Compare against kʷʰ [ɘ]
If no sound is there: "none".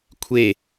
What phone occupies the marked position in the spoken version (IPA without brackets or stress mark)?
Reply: e